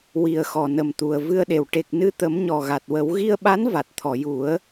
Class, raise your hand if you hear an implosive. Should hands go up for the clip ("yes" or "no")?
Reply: yes